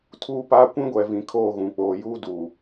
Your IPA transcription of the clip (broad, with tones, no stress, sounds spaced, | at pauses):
tʰ uː˦ p aː˦ kʷ ĩ˦ ɡʷ ɛ˨ v ĩ˨ kʰ oː˦˨ ɣ ũ˨ k͡p oː˨ j uː˦ d uː˨